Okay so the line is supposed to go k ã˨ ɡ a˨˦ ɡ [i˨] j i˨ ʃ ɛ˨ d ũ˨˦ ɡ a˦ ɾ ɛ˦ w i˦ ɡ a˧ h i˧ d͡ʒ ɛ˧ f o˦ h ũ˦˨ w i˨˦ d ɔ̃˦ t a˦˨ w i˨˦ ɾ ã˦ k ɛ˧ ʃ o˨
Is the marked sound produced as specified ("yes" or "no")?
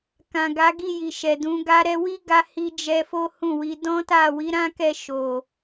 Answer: no